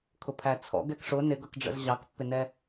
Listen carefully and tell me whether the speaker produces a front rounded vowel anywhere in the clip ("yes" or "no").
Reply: no